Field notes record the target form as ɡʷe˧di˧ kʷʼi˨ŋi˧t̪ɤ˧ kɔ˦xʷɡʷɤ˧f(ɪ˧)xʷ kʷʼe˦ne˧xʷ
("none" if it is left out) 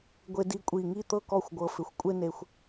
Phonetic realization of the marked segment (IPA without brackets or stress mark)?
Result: ɪ˧